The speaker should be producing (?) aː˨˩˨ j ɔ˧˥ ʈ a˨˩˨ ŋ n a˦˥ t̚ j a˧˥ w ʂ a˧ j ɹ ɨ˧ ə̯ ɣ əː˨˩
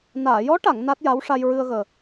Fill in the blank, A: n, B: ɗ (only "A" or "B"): A